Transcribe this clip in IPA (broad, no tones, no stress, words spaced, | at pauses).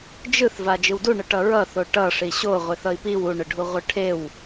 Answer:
d͡ʒɯθ vad͡ʒɯwduɳɯ ʈʌɹʌθo ʈʌ ʂiɕoʁʷeθ ʌi̯piw uɳɯɖʱu ʁʷɯʈʰew